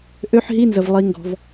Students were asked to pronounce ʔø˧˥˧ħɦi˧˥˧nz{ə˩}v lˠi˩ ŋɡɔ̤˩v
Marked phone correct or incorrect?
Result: correct